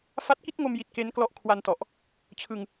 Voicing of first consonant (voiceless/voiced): voiceless